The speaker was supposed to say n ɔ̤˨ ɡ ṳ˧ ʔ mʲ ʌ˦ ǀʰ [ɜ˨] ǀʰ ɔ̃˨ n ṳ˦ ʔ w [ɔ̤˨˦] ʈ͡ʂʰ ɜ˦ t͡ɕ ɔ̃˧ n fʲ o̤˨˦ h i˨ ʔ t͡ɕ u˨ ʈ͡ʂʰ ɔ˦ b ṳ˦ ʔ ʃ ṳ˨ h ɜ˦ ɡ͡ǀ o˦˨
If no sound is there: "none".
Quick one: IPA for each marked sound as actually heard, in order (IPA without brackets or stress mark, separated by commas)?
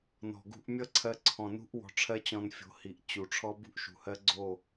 ɜ˧, ɔ̤˧